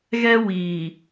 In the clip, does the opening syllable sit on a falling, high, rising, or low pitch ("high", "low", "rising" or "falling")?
high